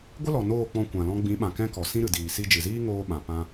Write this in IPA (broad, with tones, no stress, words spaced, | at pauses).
ɡʷə˦lɔ˨ noː˦˨k͡pɔ̃˧ kʷã˨lɔ̃˧ ɡ͡bĩ˨˦ɓã˨ kɛ̃˦kɔ˨ sĩ˦ɾɨ˨diː˨ si˧d͡ʒɨ˨ziː˦ ŋoː˧ ɓã˨ pã˧